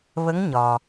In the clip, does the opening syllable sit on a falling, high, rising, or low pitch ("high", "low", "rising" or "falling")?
rising